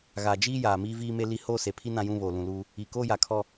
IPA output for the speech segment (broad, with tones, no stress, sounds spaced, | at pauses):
ɣ aː˨ d͡ʒ iː˦ j aː˨ m iː˦ v iː˦ m e˦ l i˦ h oː˦ s e˨ pʰ i˦ n ã˦ j ũ˦ β oː˨ l ũ˨ l uː˦ | i˨ k oː˦ j a˨ kʰ ɔ˦